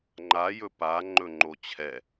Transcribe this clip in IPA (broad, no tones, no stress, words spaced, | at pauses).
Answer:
ŋ͡ǃa jɵpa ŋ͡ǃɵŋ͡ǃot͡ɕʰɛ